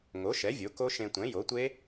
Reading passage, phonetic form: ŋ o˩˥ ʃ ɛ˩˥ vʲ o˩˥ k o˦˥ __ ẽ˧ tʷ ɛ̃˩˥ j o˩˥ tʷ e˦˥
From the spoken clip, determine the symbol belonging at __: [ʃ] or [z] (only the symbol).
ʃ